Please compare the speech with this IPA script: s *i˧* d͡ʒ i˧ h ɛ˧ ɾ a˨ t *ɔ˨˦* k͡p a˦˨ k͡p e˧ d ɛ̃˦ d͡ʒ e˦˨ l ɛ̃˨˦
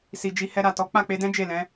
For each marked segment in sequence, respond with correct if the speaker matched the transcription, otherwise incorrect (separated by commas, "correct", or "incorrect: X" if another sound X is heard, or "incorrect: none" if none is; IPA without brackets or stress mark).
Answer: incorrect: i˨, correct